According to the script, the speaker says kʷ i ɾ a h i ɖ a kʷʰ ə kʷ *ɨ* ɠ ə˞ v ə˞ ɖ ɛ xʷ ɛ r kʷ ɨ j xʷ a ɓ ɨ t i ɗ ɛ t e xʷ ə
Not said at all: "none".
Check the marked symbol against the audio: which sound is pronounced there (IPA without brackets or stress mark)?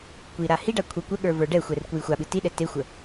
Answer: ə